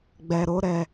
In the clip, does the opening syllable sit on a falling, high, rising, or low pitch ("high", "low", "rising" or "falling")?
low